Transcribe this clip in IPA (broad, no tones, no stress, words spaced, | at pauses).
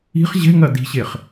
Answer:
i̤χ ʑɛ̤ŋɐ di̤ɕeχ